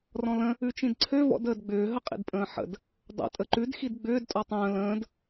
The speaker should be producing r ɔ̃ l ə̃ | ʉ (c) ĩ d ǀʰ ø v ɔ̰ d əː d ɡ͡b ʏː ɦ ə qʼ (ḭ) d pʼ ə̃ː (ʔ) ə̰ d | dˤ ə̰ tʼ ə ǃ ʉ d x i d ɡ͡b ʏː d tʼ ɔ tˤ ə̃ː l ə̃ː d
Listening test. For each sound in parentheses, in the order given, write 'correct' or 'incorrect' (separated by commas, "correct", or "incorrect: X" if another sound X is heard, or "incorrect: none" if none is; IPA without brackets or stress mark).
incorrect: t͡ʃ, correct, incorrect: ħ